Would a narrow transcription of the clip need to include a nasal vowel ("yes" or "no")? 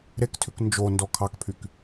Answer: no